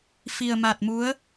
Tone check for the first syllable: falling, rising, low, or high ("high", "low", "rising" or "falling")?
low